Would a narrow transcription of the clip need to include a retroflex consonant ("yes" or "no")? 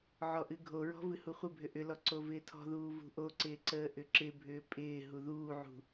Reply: no